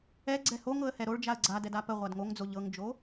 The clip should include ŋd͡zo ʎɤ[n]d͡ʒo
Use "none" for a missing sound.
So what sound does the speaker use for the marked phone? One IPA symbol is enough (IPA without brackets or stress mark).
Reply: ŋ